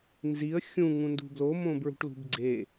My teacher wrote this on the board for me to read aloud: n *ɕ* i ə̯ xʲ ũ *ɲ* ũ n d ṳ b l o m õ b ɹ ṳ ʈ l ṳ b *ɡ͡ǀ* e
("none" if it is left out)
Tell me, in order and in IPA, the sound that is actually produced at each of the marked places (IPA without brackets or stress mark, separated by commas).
z, ŋ, ɡ͡ǀ